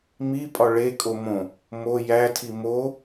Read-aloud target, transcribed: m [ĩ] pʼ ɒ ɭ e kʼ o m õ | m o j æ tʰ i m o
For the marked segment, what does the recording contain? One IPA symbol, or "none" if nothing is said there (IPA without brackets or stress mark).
i